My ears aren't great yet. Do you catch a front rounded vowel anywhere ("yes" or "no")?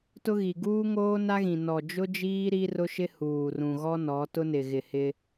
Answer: no